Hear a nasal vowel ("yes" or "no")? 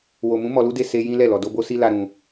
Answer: yes